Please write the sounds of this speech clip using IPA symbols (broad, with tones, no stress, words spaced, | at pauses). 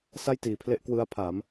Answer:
sa˥˩jtiː˩˦pʰle˦˥ʔ kwɯ˦˥a̯pʰa˩˦m